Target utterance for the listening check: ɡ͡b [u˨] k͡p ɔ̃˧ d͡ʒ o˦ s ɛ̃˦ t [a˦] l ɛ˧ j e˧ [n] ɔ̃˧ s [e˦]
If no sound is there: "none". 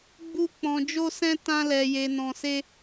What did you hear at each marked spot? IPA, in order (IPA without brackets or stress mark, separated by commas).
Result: u˦, ã˦, n, e˦